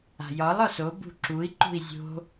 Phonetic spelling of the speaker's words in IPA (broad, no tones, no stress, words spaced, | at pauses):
a̤jɒlˠɒ so bṳǁui̯ǃṳi̯ zʲo̤